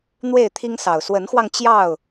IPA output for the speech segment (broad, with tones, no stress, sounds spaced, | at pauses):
n̪ w e˥˨ ɪ̯ t̪ʰ i˦ ŋ s ɑ˨˩ ʊ̯ s w ə˨˦ n x w ɑ˧ ŋ t͡ɕ j ɑ˥˨ ʊ̯